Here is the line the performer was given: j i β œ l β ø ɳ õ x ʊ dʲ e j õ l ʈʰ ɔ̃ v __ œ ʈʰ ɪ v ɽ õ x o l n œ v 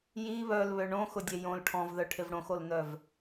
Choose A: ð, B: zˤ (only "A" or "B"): A